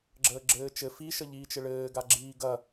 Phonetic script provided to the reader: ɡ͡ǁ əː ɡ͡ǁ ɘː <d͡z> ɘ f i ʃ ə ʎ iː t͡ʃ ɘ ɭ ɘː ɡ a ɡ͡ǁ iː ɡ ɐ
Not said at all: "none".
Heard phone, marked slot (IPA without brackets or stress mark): t͡ʃ